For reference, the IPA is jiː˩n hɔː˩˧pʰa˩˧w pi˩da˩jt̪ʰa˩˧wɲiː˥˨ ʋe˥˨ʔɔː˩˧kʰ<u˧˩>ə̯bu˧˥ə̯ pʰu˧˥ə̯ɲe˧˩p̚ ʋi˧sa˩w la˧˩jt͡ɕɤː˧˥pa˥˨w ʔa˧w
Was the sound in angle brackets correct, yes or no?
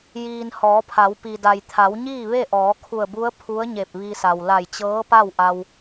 yes